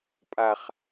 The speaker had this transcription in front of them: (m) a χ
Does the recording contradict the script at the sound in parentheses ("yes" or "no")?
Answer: yes